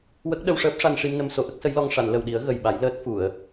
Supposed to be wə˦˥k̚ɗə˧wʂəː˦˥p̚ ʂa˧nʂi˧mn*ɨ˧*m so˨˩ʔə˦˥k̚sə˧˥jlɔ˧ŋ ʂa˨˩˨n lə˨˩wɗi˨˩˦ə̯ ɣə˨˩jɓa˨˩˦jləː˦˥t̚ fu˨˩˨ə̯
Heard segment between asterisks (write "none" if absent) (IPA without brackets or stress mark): ə˧